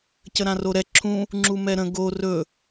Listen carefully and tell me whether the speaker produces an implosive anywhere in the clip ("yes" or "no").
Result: no